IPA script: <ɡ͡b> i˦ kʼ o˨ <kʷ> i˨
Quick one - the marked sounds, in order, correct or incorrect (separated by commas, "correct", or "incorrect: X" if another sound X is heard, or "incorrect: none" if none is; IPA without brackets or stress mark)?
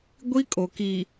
incorrect: ɡʷ, incorrect: k